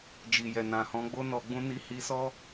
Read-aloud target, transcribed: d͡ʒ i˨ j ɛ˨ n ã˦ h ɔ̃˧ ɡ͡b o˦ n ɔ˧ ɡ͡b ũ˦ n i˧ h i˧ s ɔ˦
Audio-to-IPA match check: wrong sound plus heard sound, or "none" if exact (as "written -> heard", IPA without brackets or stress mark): ã˦ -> ã˨